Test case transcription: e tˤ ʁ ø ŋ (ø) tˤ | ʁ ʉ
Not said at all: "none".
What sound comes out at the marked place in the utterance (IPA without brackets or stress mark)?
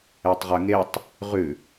e